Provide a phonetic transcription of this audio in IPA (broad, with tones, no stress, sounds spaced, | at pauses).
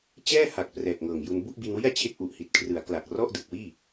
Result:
t͡ɕ ɛː˥˩ h a˨˩ k̚ p r ɛː˨˩ k̚ ŋ ɤː˨˩ ŋ j u˧ n b u˥˩ ʔ b i˧ n w i˥˩ a̯ t͡ɕʰ e˥˩ k̚ ʔ u˨˩ ʔ h i˨˩ t̚ kʰ r ɯ˩˦ a̯ k l a˨˩ k̚ r ɔ˥˩ ʔ d ɯ˨˩ k̚ w iː˥˩